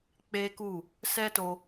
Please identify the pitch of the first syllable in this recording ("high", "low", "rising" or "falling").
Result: high